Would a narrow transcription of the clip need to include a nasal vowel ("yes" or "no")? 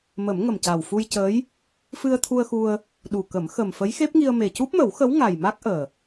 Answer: no